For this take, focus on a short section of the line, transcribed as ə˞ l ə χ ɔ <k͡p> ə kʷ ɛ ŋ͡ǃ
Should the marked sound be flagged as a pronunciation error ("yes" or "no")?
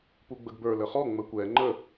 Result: yes